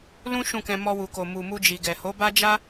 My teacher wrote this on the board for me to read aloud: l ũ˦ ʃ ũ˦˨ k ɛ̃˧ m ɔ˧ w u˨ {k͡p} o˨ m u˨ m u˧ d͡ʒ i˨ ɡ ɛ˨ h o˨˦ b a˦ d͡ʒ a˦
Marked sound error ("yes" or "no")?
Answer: yes